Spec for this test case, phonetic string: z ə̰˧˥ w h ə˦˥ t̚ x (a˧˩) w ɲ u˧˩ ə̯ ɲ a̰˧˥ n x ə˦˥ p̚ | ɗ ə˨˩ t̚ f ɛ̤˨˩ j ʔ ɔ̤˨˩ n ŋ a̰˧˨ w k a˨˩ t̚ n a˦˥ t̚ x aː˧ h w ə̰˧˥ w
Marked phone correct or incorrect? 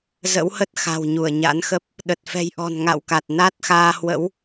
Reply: incorrect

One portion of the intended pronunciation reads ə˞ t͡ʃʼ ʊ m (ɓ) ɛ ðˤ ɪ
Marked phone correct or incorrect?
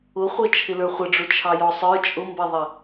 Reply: incorrect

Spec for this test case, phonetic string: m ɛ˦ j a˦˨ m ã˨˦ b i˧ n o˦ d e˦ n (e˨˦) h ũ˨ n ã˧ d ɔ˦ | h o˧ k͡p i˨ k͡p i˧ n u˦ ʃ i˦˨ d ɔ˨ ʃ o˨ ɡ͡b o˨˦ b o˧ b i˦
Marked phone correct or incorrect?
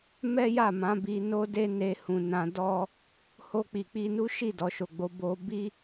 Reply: incorrect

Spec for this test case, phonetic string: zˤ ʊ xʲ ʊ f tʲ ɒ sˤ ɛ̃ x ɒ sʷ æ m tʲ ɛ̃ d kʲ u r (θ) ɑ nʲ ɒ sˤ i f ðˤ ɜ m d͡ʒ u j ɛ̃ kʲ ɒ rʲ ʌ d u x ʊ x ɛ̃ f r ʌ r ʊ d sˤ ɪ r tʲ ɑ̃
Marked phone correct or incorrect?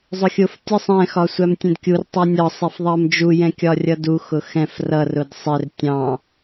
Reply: incorrect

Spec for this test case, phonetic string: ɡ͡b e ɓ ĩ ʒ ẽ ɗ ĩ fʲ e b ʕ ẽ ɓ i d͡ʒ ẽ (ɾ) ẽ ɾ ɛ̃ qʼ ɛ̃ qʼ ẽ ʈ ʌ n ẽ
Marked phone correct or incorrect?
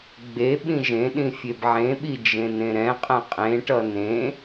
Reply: incorrect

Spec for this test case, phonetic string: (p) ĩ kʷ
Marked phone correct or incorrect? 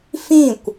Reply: incorrect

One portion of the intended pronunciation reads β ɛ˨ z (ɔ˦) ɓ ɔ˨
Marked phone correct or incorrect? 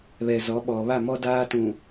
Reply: incorrect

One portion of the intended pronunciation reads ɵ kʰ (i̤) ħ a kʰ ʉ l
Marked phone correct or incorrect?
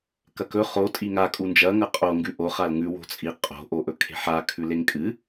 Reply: incorrect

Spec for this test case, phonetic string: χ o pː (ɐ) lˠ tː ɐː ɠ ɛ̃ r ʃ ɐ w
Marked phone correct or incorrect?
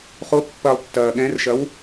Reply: correct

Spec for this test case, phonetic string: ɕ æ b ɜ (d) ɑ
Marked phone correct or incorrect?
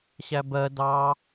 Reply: correct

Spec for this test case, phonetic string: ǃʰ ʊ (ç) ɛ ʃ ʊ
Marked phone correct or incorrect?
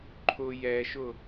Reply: incorrect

